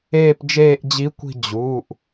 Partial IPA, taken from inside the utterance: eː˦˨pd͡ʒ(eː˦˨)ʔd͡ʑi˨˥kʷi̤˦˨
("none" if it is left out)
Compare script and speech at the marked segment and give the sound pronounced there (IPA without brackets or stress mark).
eː˦˨